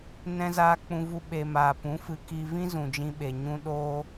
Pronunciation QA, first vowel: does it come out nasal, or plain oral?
nasal